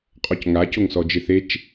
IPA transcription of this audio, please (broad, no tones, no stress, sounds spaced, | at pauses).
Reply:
qʼ ɔ c ŋ a c o ŋ s ɔ d͡ʒ ɪ θ e t͡ʃ